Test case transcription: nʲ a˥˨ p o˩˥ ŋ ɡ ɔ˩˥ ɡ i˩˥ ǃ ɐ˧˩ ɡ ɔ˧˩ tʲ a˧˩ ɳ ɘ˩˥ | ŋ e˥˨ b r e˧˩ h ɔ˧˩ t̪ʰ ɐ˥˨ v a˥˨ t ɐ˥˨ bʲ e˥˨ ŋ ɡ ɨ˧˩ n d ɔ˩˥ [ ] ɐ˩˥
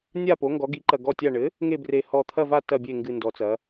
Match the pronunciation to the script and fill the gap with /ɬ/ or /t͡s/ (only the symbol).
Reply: t͡s